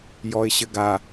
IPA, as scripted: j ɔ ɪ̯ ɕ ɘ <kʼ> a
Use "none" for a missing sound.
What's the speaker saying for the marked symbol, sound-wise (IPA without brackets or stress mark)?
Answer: ɡ